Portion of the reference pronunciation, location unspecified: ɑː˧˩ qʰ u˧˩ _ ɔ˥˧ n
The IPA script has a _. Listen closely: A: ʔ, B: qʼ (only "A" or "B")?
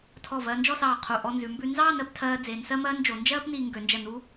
A